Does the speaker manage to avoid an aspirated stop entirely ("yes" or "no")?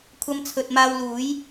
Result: no